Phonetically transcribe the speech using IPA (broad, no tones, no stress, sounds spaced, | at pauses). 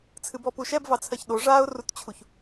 t͡sʰ ɨ b ɔ p u ʃ ɛ b v ɑ t͡sʰ ɜ ç ɗ o ʐ aː ʊ̯ r u t t͡ɕʰ u ç